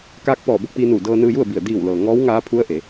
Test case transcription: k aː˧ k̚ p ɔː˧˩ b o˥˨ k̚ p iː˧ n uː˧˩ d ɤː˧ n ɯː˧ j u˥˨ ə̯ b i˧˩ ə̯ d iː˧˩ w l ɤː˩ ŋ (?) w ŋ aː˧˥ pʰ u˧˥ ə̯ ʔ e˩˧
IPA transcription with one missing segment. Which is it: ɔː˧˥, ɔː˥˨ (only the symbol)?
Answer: ɔː˧˥